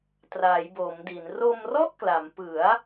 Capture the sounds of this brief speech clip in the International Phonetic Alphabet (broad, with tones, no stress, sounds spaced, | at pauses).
t r a˩˦ j b o˩˦ m d i˩˦ n r o˧ m r ɔ˥˩ ʔ k l a˩˦ m p ɯ˩˦ a̯